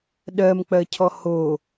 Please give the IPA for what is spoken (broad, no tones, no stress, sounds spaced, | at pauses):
ɗ ɜ m k͡p ɜ cʰ ɔ h o